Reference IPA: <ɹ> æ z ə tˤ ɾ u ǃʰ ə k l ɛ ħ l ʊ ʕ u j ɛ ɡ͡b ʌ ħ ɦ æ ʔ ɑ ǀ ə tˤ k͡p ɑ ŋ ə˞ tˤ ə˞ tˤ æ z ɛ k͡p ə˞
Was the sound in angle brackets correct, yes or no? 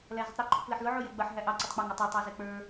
no